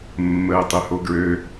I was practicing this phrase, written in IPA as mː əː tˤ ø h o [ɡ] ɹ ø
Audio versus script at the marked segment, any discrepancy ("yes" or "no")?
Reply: no